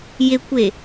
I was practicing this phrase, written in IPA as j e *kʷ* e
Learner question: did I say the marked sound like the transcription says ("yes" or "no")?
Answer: yes